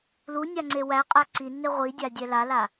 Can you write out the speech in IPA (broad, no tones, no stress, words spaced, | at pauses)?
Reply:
lunʲa ŋ͡ǀewæqʼæ ǀinːe ʁʷidʲa dʲɛlala